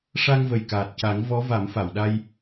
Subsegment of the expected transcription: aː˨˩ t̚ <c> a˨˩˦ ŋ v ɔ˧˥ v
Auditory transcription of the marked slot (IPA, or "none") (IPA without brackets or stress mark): c